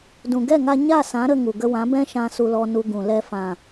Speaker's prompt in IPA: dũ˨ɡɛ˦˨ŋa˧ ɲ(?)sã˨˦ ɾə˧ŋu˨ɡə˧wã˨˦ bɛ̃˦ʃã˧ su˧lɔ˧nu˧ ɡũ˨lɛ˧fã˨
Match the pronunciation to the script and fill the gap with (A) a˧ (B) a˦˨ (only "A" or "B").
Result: B